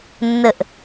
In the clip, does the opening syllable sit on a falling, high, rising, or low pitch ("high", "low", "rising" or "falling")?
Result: falling